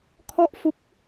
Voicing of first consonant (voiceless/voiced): voiceless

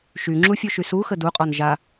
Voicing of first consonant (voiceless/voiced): voiceless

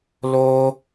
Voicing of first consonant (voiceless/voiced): voiced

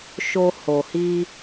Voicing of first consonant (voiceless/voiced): voiceless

